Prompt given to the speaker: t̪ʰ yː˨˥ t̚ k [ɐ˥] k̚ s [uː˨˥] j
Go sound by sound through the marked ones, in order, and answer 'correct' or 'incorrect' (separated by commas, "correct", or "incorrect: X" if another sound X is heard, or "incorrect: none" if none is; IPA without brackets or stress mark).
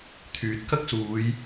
correct, incorrect: uː˨˧